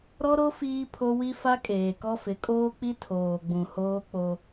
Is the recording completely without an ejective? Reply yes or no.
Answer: no